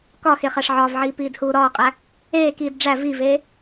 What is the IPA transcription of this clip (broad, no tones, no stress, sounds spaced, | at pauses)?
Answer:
k ɒ x e χ æ ʂ ʕ ɒː v ʕ iː p iː d h uː ɾ ɒː qʼ æ | eː k iː d ɖ͡ʐ æ v i v eː